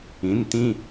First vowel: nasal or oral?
nasal